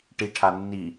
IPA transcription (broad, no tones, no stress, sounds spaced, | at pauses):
ʈ i ʈʰ a nː i